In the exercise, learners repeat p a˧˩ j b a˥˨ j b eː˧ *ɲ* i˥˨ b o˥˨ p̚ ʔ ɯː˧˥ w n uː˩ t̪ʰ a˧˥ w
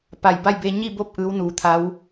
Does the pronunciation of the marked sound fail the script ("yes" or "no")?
no